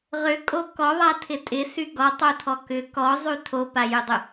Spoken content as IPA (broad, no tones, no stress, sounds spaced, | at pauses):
ʁ ʏ kʼ o k ɔ ðˤ a tʰ ɪ tʼ ɪ s y ɡ ɔ tˤ o tʰ ɔ k ʏ k ɔ zˤ y tʰ o p a j ʏ dˤ ʏ